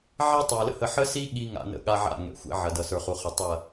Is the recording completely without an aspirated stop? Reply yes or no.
yes